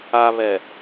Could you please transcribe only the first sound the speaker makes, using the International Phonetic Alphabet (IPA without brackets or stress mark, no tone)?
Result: a